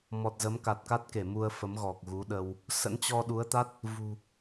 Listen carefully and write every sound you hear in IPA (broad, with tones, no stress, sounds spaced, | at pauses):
m ɔ˨˩ t̚ z ə˨˦ m k a˨˩ t̚ k a˦˥ t̚ k e˧˩ m u˧ ə̯ f ə˨˦ m ɣ ɔ˨˩ k̚ ɣ u˨˦ ɗ ə˧ w | s ə̰˧˥ n t͡ɕ ɔ˧ ɗ u˨˦ ə̯ t̪ a˦˥ t̚ | v ṳ˨˩